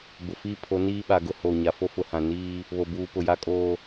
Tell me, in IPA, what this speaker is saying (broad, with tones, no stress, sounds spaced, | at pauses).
b ʊ˨ f iː˦ pʰ o˨˦ n iː˦ ɓ a˨ ɡ ʊ˦ h o˨ ɲ a˨ f o˦ f ʊ˨ h ã˨ n iː˦ | β o˨ b uː˨ p ʊ˨ j a˦ kʼ oː˦